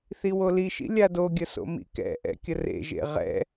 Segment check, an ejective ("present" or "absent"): absent